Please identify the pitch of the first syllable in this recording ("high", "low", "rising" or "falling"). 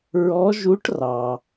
rising